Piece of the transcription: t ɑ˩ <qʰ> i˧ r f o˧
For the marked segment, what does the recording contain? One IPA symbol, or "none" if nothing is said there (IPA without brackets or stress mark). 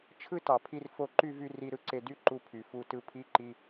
pʰ